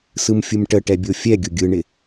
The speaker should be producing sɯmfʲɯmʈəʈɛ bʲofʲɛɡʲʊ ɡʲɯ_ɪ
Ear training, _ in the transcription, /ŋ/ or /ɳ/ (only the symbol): ɳ